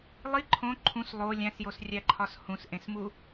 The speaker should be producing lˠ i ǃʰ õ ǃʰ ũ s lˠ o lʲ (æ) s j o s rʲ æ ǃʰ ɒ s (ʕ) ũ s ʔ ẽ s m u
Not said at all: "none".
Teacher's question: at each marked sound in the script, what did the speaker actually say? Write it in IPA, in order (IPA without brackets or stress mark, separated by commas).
æ̃, h